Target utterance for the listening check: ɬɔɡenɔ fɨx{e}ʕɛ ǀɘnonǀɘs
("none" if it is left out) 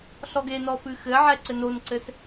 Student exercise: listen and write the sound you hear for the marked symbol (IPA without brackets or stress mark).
ɘ